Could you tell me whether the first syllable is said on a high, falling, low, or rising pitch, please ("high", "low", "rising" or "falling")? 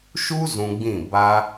high